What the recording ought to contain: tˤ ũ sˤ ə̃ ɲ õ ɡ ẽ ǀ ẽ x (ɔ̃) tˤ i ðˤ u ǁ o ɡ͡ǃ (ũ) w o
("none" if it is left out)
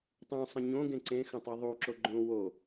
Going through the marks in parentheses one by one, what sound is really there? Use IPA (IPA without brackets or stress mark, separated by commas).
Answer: ə̃, õ